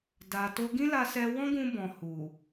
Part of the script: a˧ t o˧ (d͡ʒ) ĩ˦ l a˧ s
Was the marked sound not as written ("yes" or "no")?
yes